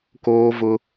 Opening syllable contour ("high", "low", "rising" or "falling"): high